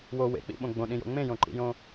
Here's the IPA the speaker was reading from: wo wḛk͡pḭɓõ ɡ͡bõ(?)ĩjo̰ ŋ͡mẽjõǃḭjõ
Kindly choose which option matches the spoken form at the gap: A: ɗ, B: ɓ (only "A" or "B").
A